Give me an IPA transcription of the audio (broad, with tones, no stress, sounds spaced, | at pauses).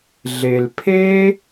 ɮ e˨ l pʰ e˦